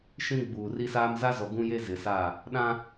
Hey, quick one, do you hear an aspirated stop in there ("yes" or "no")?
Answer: no